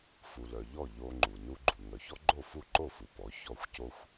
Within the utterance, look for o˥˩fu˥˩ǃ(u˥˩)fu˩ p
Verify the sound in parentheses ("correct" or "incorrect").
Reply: incorrect